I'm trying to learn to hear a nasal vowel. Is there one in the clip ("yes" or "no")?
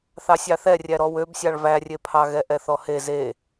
no